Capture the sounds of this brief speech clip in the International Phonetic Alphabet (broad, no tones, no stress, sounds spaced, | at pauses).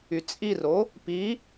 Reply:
y t͡sʼ i r o | p i